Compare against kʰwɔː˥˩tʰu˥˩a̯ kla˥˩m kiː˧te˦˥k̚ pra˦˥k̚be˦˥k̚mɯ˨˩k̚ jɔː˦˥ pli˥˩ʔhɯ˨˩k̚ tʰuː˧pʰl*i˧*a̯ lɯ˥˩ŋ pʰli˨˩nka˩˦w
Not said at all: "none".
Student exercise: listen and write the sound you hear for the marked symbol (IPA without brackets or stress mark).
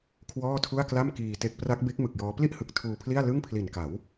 i˥˩